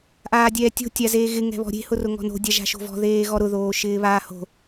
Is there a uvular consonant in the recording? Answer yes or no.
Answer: no